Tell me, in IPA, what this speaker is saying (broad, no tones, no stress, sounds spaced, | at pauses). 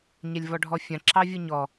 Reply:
ɲ ɛ lʲ v ɔ ɖʱ ɔ fʲ ã ǁ ɑ vʲ ɯ ɲ ɔ